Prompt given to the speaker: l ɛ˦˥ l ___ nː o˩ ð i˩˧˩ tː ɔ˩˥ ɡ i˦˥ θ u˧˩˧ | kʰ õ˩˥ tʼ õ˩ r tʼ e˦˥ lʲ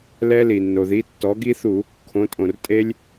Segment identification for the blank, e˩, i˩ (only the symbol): i˩